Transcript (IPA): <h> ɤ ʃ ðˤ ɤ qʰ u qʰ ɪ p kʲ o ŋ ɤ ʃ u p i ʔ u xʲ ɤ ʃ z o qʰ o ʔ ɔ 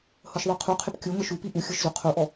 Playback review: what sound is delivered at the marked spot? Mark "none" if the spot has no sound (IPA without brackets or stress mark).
h